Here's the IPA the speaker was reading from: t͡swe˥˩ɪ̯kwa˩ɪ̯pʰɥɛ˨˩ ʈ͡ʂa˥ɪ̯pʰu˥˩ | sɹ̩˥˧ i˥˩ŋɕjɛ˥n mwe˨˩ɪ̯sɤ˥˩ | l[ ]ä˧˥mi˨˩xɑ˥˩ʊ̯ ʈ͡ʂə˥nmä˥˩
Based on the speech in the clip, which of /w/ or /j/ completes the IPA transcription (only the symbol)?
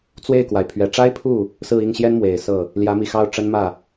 j